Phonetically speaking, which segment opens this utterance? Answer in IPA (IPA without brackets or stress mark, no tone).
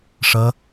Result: ʂ